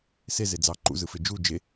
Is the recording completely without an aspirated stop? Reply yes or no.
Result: yes